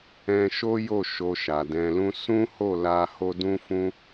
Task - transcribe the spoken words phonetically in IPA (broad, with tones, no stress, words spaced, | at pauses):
ɛ̃˦ ʃo˦jo˦˨ ʃo˧ʃa˨dɛ̃˧lũ˦ sũ˦ho˦˨la˧ ho˦dũ˦fũ˦